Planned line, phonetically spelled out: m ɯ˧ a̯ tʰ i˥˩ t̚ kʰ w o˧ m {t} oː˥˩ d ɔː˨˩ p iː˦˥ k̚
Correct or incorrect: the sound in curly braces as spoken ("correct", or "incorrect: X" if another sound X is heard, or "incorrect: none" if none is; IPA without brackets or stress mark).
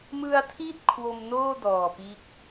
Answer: incorrect: n